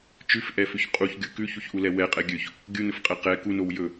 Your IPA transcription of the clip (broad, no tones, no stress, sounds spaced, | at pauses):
t͡ʃ ʉ f ʔ ɛ f ʉ ç qʼ u ç ɡʲ u k ʉ ç u ç ʔ u l ɛ w ɛ qʼ ɛ ɡʲ ɵ ç | ɡʲ u n ɵ f qʼ ɛ q ɛ k u n o w j ɵ